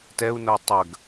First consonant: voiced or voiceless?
voiceless